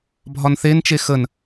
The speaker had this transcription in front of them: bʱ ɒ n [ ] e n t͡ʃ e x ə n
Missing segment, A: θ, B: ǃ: A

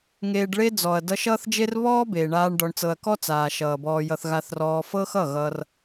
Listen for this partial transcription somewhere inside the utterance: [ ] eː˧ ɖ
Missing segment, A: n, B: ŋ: B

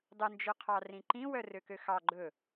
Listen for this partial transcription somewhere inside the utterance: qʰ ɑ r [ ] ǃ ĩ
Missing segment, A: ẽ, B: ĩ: B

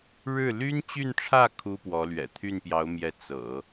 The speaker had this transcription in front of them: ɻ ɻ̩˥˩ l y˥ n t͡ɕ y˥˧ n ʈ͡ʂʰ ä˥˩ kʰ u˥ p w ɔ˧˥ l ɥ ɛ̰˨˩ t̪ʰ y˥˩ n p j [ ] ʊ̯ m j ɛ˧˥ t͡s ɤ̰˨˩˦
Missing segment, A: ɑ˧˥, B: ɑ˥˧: A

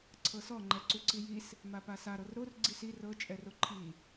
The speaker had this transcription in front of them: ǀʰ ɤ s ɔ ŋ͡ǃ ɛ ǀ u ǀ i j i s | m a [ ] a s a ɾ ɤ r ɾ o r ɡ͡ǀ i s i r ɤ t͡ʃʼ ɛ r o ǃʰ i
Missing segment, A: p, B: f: A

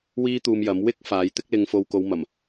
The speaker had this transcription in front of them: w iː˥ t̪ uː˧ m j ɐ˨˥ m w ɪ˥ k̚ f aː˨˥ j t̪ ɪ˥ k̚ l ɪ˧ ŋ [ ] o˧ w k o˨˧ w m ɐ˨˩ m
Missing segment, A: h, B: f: B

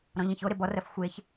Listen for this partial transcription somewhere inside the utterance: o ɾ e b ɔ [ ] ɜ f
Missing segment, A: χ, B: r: B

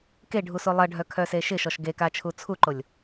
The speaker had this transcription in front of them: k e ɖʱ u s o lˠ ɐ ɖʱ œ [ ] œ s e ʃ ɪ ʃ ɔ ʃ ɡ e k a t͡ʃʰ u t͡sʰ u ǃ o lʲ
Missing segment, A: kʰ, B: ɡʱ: A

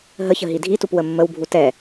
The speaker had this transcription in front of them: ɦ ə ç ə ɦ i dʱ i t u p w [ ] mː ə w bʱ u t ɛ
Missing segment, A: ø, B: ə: B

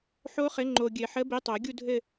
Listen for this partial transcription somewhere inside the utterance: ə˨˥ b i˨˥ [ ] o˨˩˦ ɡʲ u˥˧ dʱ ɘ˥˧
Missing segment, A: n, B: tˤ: B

